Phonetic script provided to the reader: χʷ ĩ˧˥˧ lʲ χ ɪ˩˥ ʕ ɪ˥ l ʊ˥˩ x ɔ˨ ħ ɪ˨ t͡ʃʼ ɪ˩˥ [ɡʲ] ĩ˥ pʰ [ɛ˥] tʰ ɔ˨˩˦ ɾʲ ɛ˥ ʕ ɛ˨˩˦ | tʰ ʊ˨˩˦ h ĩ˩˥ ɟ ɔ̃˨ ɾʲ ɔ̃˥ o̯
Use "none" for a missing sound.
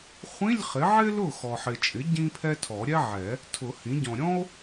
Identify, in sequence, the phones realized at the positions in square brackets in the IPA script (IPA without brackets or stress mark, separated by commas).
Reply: ɟ, ɛ˥